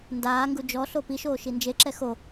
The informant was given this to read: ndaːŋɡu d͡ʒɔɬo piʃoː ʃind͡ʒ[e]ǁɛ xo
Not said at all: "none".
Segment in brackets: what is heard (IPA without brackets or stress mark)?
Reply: e